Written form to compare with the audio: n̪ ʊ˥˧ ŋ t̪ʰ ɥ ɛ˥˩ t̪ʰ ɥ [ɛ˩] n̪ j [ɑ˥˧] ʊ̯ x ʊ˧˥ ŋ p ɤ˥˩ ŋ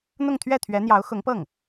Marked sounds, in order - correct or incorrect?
incorrect: ɛ˧˥, incorrect: ɑ˧˥

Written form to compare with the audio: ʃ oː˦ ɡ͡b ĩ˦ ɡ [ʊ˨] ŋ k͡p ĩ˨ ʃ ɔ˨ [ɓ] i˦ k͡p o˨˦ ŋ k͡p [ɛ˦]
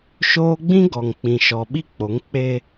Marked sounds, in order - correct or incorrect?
incorrect: ɔ˨, correct, incorrect: e˦

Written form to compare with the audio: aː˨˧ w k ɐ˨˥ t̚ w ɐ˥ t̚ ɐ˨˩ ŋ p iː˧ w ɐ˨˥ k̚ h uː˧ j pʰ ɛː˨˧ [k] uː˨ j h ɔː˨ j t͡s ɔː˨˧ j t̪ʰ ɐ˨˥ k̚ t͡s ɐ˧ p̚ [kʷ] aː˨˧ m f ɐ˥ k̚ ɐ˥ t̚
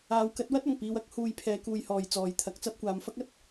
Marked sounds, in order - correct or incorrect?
correct, correct

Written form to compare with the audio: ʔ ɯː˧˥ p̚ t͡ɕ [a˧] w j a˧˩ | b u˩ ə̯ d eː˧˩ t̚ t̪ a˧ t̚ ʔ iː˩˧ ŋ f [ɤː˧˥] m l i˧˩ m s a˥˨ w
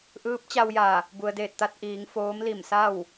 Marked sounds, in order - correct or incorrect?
correct, incorrect: oː˧˥

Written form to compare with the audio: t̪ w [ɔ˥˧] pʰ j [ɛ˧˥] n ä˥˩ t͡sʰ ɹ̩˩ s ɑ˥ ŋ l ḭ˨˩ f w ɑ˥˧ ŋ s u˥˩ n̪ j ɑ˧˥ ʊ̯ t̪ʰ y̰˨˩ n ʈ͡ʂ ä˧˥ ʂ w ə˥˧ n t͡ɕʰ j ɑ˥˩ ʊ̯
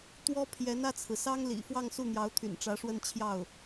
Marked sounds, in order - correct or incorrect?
incorrect: ɔ˥, correct

